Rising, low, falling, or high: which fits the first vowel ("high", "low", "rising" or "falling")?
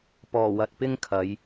low